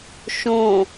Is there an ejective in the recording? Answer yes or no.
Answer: no